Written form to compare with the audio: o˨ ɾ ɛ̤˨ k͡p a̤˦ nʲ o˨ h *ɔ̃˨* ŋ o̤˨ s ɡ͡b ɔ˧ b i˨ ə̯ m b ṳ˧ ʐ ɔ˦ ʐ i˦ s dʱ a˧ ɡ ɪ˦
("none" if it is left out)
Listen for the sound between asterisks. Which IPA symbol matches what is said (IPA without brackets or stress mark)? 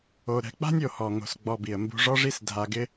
ɔ˨